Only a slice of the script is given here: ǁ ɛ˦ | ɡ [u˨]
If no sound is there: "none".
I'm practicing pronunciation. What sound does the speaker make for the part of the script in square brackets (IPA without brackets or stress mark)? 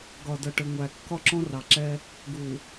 u˨